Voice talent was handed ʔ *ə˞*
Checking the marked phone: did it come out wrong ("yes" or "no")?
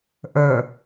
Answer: no